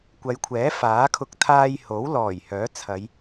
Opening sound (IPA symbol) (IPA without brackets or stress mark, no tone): kʷ